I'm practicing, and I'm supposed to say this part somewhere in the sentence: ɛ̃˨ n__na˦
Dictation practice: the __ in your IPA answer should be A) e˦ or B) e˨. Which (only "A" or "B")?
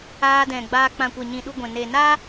B